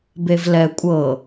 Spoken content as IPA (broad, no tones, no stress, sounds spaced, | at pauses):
b e v l ɛ kʷʼ ɤ